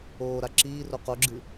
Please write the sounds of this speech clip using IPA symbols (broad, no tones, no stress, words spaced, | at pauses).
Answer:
oːɾa ǁiːro qoɡ͡ǁɨ